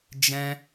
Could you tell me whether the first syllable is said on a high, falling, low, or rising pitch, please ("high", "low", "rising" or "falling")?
high